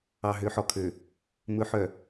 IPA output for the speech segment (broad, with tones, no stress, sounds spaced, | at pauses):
ɑ˨ ɦ ø˨˦ ħ ɔ˨ kʰ ø˨ | m ɵ˨˦ ħ œ˨